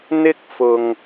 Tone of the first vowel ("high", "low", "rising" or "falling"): high